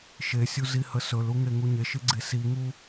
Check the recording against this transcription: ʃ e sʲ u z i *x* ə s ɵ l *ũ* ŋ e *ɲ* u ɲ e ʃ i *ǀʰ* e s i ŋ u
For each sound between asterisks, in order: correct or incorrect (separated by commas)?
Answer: incorrect, incorrect, incorrect, incorrect